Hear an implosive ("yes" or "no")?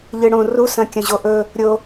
no